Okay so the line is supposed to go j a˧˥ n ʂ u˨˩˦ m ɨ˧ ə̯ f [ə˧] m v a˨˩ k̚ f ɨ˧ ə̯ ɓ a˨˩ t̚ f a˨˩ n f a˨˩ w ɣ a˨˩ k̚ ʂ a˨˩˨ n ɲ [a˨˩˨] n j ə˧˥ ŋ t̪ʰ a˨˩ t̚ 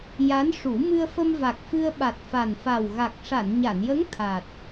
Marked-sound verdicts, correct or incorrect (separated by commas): correct, correct